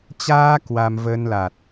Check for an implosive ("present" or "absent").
absent